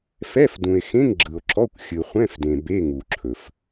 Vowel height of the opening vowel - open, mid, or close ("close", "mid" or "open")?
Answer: mid